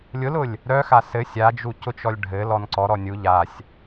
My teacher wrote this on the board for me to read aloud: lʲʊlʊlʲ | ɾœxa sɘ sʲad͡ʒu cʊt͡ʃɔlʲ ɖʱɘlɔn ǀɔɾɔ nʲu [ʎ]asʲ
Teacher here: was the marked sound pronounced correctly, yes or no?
yes